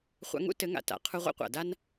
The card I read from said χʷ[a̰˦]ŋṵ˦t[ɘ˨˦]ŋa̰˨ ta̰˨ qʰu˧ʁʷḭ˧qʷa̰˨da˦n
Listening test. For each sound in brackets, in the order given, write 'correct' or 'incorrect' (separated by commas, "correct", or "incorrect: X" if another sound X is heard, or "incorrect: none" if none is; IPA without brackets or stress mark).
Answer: incorrect: a̰˧, correct